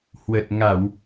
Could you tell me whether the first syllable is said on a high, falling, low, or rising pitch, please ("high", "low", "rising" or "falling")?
low